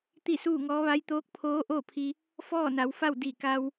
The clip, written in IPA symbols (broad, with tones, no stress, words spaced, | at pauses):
t̪i˥˨suː˥˨ŋɔː˧˥ ʋa˧˥j t̪oː˧˥k̚pʰoː˧˥ʔoː˥˨pʰi˧ | fɔː˥˨na˩˧wfa˥˨w di˧˩ ka˧w